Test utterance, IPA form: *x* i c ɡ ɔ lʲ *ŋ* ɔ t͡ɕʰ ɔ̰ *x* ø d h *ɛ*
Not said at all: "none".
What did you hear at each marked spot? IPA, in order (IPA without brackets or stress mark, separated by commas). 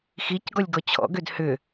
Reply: x, ɡ, ɡ, ʏ